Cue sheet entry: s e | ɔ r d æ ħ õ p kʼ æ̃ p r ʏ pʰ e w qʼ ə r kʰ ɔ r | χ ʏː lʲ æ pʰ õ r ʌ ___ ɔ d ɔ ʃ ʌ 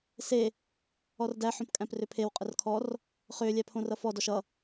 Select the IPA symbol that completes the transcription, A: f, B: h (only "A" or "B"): A